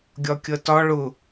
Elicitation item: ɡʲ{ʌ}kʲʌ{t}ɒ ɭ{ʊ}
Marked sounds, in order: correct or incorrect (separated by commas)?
incorrect, correct, correct